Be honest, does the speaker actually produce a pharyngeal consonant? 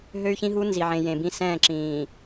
yes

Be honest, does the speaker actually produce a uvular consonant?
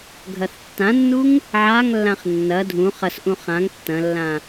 yes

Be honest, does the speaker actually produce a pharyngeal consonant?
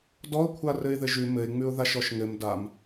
no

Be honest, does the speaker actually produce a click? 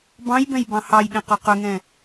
no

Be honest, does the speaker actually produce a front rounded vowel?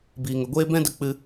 no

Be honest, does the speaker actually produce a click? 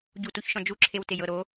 yes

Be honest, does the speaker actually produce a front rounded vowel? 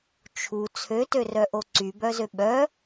yes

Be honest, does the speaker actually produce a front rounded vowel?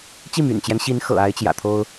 yes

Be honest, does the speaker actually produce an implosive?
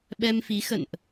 yes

